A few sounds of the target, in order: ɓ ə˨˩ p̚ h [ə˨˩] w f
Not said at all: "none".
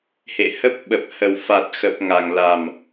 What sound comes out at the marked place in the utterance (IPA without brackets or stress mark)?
ə˨˩